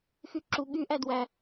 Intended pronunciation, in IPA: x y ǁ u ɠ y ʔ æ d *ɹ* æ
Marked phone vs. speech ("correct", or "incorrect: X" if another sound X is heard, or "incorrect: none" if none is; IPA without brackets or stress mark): incorrect: w